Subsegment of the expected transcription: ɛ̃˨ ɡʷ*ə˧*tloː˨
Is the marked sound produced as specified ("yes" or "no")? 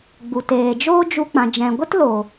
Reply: no